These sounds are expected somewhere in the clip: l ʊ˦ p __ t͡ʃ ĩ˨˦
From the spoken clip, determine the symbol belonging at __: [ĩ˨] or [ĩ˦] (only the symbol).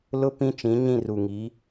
ĩ˦